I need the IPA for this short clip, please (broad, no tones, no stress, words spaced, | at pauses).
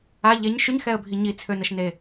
a ʎeɲ ʃyɲxɛə̯bʱi ɲit͡sʰønəʃne